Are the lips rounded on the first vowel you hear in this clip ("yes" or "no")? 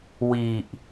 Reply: no